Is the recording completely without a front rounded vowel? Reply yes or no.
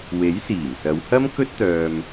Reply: no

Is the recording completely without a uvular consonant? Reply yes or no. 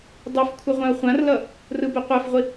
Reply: no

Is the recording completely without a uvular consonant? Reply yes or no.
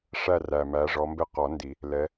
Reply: no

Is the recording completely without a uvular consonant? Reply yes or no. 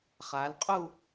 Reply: no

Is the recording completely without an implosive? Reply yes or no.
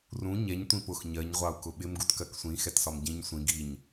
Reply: no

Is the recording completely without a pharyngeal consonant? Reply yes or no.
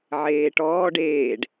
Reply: no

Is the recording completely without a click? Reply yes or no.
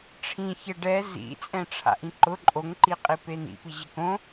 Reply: no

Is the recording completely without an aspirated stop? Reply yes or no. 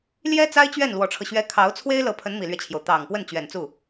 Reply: no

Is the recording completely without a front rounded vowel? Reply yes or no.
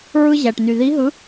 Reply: no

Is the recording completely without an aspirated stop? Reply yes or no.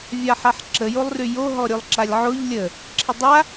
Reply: no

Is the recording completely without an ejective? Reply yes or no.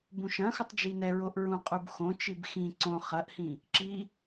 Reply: no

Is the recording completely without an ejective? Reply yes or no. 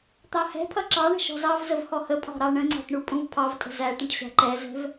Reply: no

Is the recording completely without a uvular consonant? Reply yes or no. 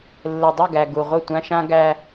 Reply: no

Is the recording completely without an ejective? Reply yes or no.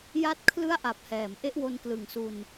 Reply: yes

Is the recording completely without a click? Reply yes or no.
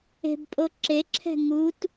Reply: no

